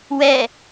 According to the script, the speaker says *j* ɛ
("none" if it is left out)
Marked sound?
w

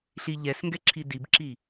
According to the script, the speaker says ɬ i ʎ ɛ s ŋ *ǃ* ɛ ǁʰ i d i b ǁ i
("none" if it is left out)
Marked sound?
ɡ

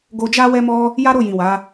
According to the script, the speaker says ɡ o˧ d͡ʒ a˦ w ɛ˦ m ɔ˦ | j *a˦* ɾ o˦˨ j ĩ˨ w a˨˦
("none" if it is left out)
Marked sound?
a˦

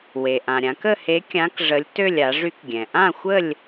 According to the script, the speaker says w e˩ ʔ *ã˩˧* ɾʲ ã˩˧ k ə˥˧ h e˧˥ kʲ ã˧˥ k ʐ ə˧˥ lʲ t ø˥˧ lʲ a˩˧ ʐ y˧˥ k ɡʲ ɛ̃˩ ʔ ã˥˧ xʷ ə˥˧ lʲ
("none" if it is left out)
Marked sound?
ã˩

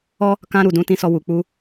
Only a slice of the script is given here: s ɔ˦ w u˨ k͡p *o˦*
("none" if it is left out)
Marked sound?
u˦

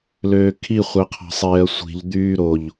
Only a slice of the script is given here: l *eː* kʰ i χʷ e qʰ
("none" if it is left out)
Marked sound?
øː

